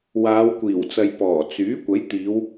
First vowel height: low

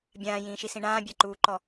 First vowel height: low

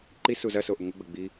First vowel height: high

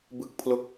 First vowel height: high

